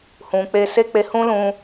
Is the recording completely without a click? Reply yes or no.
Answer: yes